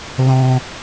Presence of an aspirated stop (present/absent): absent